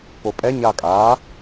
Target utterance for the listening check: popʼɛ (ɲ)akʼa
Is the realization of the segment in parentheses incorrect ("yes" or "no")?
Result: no